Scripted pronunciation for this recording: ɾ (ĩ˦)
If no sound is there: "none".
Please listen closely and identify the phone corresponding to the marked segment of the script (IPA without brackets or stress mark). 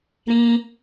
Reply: ĩ˦